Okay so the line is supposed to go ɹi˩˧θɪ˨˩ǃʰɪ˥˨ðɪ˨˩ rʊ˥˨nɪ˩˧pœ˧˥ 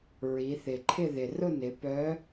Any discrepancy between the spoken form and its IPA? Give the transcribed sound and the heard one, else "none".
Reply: none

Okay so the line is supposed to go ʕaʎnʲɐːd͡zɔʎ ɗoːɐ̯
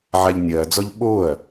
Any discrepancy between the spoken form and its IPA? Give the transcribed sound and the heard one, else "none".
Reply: ɗ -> ɓ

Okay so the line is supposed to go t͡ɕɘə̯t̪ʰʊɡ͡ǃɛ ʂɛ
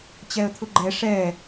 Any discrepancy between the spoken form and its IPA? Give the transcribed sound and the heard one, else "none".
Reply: ɘ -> ɛ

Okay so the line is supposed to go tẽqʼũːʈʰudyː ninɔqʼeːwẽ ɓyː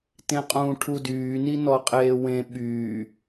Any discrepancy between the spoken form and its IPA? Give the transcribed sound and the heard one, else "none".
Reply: none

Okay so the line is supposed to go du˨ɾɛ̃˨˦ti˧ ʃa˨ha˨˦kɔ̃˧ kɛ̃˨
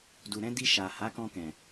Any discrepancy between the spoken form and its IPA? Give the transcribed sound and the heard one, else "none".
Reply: t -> d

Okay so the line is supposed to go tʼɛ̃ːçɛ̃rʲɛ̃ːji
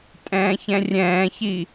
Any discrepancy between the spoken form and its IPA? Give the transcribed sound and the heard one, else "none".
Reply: j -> ç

